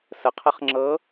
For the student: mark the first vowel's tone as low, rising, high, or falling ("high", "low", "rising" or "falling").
rising